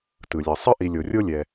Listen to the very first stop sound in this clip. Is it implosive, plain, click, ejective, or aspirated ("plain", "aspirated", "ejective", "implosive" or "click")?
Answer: plain